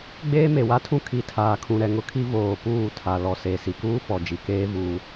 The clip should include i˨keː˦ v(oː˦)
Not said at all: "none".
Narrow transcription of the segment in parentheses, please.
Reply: uː˦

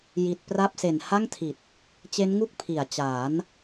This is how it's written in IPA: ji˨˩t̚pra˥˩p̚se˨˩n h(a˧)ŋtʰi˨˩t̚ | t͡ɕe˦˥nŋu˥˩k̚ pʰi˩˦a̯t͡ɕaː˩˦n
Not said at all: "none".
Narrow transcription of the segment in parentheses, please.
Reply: a˥˩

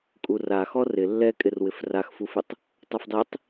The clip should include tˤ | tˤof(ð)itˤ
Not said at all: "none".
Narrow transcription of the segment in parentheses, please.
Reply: dˤ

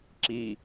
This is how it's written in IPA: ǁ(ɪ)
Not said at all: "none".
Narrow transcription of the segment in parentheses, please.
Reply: i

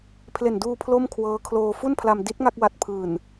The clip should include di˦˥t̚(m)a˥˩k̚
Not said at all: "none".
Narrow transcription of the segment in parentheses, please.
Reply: ŋ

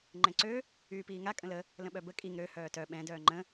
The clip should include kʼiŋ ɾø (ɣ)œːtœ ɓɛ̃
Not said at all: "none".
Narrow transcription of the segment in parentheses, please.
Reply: h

